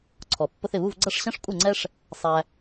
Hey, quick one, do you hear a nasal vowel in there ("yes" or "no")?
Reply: yes